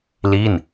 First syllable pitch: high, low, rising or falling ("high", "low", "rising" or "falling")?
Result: falling